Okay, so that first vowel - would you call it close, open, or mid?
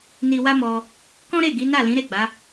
close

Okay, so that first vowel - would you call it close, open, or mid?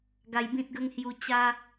open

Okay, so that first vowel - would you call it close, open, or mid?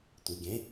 close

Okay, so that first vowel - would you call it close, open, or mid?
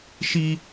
close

